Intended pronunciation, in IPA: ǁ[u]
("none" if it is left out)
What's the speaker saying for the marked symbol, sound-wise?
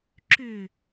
ʏ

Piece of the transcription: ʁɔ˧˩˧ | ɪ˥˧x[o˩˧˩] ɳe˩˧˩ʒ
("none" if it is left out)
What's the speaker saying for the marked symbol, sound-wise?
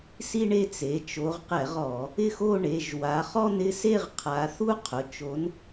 o˥˧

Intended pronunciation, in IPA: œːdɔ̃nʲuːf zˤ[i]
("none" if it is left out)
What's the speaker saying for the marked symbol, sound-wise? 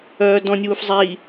i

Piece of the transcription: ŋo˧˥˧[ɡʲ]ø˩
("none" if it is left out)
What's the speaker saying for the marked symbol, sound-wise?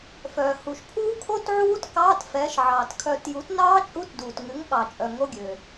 ɡʲ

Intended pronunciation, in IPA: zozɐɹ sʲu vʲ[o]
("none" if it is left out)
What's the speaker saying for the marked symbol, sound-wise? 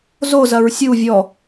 ɔ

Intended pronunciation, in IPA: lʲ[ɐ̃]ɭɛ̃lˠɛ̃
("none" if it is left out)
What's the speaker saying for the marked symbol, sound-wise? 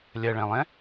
ɐ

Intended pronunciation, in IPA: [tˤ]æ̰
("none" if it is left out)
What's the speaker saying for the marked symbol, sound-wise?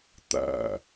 t̪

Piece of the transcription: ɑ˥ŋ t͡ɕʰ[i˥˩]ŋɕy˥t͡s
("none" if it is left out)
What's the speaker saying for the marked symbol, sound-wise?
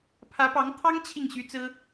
i˥˩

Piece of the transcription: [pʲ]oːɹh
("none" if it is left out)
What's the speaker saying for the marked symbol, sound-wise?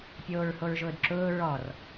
pʲ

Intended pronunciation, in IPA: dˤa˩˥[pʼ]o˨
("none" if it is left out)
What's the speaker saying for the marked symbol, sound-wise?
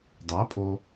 pʼ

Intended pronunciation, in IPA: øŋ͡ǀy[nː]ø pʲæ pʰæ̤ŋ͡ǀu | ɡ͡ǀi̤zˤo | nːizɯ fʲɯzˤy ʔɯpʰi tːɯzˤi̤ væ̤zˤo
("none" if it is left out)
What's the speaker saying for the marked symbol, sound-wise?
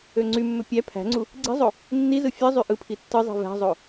mː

